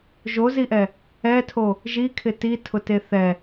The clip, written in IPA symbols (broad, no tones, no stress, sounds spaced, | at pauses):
ʒ o z i ʔ ɛ | ɛ tʰ o | ʒ i kʰ ɪ t i tʰ ʊ t e θ ɛ